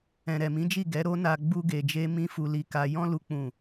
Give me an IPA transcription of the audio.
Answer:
ɛ̃˨ɾɛ˨mĩ˨˦d͡ʒi˦˨ ɡɛ˨˦ɾo˦na˧ ɡ͡bu˧ɡe˨d͡ʒe˧ mĩ˦fu˧li˧ka˧ jɔ̃˦ lu˦k͡pũ˦˨

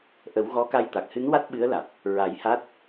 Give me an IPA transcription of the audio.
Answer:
ʔə˨˩˦w ɣɔ˧˥ka˧jt̪a˨˩k̚ hɨ˧˥n wa˦˥t̚ ɓɨ˧˥ə̯la˨˩t̚ | ɹa˨˩˦jha˦˥t̚

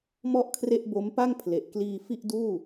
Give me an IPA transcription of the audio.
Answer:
mɔ˥˩ʔkʰre˥˩ʔ bo˦˥mpa˥˩ŋ pʰle˨˩ʔkliː˧ fi˥˩ʔduː˥˩

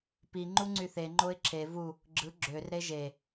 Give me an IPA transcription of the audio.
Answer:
pi ŋ͡ǃuŋ͡ǀyθe ŋ͡ǃoɪ̯ǁʰe vu | ɡ͡ǁɯ ɡ͡ǁør ɾeʒe

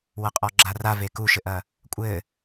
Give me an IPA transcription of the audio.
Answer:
wɐqʼɔɡ͡ǁara vekuʃɘʔɐ | kʷʼɘ

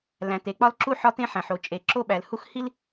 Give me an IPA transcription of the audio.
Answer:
læ̃˩ te˩k͡pɒ˥lǁu˥ ħɒ˥tẽ˥ħæ̃˩ħo˩ t͡ʃʼe˩ǁo˥ ɓæ˩lhu˥x hi˥l

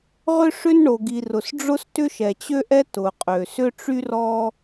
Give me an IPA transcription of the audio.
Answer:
ʁʏ˥ ʂʏ˥nɳo˩ɡi˩ rʊ˩sɖ͡ʐʊ˥s tʏ˥ʃɛ˩t͡ɕø˥ʔɛ˥ tʊ˩qʼø˩ sʏ˥ʈ͡ʂy˥ rɔ˥

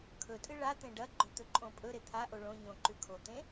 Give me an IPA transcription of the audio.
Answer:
kʰɵtʼɨ ɭat̪ẽ ɖɐɡ͡ǃɵ t̪ɵǃʼõpʼɵɾe t̪ʰaʔo ɭõ ɲõǃʉ kʰot̪ẽ

